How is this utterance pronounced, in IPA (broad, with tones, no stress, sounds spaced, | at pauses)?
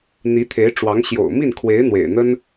n̪ i˧˥ t̪ʰ e˧˥ ɪ̯ ʈ͡ʂ w ɑ˧˥ ŋ ɕ j o̰˨˩ ʊ̯ m i˥˩ n kʰ w e˧˥ ɪ̯ n̪ w ḛ˨˩ ɪ̯ n̪ ə˥ n